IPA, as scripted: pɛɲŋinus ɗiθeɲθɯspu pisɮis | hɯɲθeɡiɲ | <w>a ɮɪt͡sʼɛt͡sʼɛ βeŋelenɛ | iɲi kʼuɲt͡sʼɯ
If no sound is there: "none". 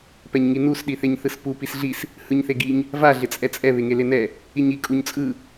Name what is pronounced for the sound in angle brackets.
v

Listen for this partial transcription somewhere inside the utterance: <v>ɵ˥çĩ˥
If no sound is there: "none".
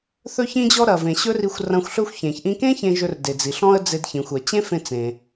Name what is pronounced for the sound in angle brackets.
θ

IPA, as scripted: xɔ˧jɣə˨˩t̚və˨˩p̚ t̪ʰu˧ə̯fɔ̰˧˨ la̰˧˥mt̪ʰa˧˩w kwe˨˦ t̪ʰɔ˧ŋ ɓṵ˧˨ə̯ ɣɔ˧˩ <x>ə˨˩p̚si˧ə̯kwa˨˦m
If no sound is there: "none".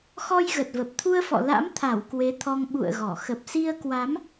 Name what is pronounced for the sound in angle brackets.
x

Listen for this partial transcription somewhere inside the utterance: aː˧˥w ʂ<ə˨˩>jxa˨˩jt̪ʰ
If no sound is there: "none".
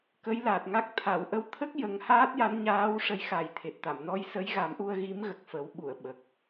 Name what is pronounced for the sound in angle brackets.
ə˧˥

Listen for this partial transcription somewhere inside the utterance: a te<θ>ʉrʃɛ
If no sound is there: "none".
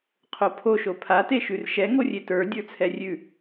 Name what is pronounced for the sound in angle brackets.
ʃ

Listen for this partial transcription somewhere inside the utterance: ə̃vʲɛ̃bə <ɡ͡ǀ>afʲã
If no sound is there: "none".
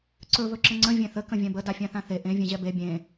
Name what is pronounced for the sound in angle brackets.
d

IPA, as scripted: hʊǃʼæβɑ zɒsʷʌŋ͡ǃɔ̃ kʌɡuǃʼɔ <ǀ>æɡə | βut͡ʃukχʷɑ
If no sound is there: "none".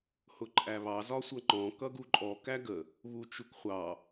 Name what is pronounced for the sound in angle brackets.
k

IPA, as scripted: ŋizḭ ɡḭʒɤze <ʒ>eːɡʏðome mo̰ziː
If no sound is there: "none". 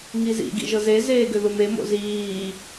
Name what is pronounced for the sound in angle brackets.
z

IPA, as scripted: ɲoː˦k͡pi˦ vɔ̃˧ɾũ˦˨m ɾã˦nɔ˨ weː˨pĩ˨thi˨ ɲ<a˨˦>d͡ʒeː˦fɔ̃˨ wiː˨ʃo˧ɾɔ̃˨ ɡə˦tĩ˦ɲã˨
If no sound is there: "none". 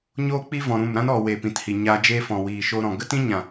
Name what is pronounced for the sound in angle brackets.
a˧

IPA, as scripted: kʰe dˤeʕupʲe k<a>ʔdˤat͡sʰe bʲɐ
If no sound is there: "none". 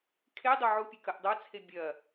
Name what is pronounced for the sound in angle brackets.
ɐ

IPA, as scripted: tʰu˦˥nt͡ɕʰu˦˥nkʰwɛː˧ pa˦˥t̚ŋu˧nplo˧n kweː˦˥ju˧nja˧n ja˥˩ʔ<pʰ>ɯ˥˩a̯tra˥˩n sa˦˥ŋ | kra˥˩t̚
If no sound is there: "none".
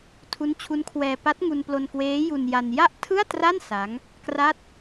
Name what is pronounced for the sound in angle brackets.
tʰ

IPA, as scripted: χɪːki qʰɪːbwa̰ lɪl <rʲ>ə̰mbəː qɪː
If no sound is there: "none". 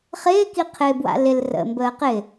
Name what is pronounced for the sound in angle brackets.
r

